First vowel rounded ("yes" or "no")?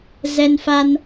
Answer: no